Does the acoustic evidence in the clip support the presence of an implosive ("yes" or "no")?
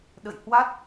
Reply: yes